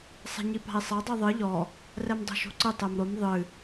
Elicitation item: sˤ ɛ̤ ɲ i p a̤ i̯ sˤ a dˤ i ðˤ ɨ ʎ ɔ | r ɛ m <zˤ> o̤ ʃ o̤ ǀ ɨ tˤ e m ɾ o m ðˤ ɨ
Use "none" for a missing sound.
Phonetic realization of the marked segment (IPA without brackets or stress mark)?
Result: dˤ